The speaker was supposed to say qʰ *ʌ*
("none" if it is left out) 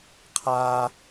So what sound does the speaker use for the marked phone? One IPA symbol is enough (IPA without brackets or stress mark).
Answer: a